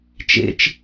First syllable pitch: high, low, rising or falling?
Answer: low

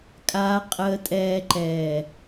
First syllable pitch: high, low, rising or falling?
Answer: low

